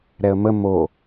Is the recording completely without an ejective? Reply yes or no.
yes